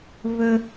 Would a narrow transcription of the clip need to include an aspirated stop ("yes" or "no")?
no